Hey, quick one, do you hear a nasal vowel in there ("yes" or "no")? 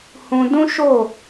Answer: yes